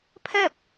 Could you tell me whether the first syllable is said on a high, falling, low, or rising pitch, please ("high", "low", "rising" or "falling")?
falling